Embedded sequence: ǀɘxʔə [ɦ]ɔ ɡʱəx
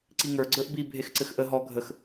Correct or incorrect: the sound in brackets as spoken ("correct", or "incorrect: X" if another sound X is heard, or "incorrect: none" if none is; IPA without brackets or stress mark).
correct